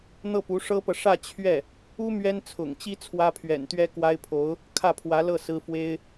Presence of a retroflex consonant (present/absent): present